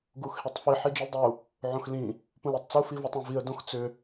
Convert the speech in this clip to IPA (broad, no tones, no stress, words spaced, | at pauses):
ɡuxhitˤfi ħid͡ʒildˤu | ʕõxlĩ | pũlutˤt͡su fivotˤõviə̯ dõxt͡sʏ